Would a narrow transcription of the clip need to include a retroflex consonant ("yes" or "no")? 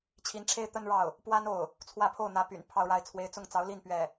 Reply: yes